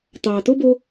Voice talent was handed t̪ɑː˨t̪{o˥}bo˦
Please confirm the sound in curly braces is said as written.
yes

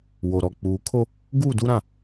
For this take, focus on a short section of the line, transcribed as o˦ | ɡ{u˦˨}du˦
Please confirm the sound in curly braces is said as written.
no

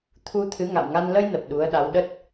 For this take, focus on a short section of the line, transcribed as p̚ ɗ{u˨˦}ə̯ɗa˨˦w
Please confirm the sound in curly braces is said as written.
yes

